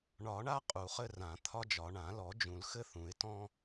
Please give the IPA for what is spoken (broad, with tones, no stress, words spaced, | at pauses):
ɳɒ˨˩˦ɳa˦ qʼu˨˩˦χɘ˦ rã˨˩˦ t̪ʰɒ˦d͡ʒɒ˨˩˦ ɳã˨˩˦lɔ˨˩˦d͡ʒũ˨˩˦l xɘ˦θũ˨˩˦ɪ̯tɔ̃˦